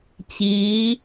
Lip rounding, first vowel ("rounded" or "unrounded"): unrounded